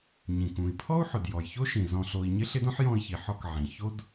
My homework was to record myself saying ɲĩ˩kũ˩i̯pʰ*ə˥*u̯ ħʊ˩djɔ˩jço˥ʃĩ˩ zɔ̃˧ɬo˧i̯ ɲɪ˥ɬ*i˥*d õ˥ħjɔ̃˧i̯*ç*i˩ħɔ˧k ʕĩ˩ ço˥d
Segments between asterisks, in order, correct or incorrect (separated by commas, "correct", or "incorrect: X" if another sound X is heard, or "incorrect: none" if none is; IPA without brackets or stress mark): incorrect: ɔ˥, incorrect: ɪ˥, correct